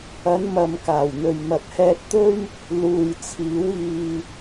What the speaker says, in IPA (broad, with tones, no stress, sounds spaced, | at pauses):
ɐ˨˧ n m ɐ˧ m k aː˨˩ w n̪ ɵ˨ ɥ m ɐ˨ t̚ h ɛː˧ t̚ t̪ ɵ˥ ɥ | l uː˨ j t͡sʰ iː˨˥ w iː˧